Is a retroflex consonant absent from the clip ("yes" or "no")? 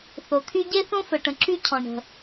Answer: no